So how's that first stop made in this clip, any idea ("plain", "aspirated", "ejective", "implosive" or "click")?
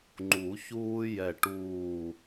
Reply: click